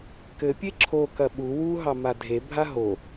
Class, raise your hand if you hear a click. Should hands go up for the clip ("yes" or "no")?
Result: yes